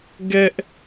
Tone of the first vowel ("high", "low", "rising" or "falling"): high